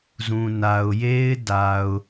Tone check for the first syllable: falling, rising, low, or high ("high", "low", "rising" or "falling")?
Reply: low